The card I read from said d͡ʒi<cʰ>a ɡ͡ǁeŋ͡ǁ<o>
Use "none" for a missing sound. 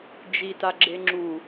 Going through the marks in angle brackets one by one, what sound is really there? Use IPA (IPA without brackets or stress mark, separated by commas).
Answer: t, u